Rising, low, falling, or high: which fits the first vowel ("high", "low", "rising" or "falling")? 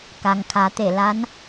low